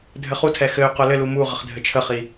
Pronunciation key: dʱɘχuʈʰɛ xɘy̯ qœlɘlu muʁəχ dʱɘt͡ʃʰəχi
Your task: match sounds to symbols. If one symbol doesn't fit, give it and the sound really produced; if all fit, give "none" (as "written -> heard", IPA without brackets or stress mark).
ʈʰ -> tʰ